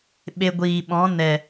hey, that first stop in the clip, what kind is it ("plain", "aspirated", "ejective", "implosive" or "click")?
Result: implosive